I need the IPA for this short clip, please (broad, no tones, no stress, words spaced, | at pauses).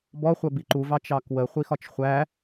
bɔχʷɜ biǃuvɑ t͡ʃɑkwə χʷixɒt͡ʃχʷæ